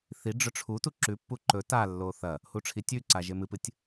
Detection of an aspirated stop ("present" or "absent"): present